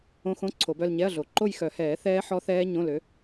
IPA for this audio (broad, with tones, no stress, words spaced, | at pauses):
õ˦˥xõ˧˥˧ ǀʰo˨˩˦bœ˥˧lɲɛ˧˥˧ɐ̯ɮo˨˩ ǃo˥˧jxœ˨˩˦hɛː˨˩˦θɛː˦˥ ħɔ˦˥θɛː˦˥ ɲõ˧˥˧lø˨˥